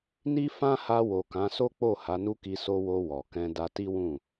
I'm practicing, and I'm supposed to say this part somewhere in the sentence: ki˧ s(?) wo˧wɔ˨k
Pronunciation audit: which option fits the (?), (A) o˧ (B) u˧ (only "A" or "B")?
A